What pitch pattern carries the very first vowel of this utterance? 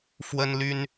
high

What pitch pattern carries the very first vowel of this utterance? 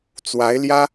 rising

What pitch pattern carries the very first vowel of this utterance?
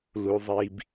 low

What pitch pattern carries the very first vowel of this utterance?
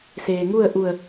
low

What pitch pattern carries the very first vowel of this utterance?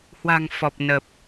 low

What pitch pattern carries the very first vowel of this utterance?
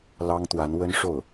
high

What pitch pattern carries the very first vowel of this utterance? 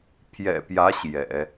low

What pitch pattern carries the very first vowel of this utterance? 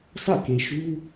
falling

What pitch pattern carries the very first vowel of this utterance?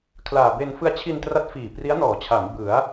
low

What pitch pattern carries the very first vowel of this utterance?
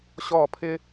falling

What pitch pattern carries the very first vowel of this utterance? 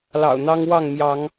low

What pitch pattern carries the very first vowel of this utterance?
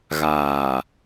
low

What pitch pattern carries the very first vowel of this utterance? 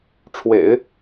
low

